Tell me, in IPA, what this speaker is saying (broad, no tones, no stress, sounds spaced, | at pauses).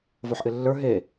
v o ħ ʔ ɪ lː ə˞ ɦ e